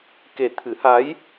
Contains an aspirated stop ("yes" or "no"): yes